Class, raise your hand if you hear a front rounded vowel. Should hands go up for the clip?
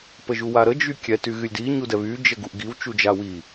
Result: yes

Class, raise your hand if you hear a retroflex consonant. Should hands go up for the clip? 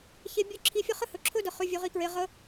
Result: no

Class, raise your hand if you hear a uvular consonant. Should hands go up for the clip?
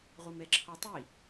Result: yes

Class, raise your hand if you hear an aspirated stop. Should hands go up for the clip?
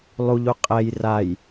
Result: no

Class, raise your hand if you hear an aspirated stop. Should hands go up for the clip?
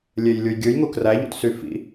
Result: no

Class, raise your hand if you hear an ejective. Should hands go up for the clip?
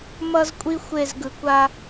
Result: yes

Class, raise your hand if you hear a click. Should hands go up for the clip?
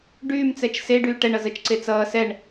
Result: yes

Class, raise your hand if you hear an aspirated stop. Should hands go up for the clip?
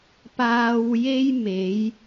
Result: no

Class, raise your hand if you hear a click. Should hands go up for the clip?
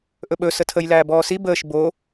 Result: no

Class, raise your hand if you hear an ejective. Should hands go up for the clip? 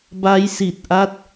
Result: no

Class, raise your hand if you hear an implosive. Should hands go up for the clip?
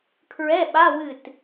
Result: yes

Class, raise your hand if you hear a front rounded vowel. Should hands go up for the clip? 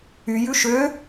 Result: yes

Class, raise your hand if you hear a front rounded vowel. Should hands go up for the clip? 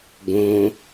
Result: no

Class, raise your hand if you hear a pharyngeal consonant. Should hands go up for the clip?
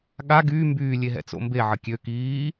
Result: yes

